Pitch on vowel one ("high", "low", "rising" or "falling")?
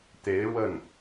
rising